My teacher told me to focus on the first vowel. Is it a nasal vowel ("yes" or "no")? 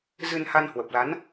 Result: no